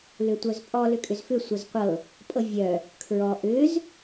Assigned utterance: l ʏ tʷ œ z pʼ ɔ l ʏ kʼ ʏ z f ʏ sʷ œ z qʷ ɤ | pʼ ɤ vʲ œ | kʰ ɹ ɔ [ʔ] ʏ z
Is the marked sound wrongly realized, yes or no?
no